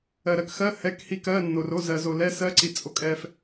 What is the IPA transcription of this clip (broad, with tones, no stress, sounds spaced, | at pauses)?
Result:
ɜ˨ ɾ ɜ˨ k x ɜ˧˥˧ h ɛ˧˥˧ k h i˧˥˧ k ɜ˧˥˧ nː o˨ r o˧˥˧ z ɜ˨ z o˨ l ɛ˧˥˧ s ɜ˧˥˧ ǀ i˨ t͡sʼ o˨ kʼ ɛ˨ f